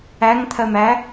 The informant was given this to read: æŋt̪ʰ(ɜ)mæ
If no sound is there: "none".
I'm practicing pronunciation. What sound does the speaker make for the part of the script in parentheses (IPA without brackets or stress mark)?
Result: ɜ